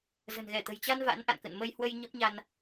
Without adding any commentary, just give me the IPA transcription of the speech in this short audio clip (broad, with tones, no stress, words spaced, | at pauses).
zə̤˨˩nɣɛ˧˩t̪ə̤˨˩jt͡ɕa˧n va̰˧˥nʔa̰˧˨nkə̰˧˨n mə˧jhwə˧j ɲə˦˥p̚ɲa˧n